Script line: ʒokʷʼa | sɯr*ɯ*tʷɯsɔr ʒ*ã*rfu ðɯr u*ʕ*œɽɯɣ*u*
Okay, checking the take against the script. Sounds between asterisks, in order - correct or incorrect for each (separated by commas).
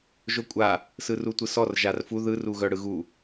incorrect, incorrect, incorrect, correct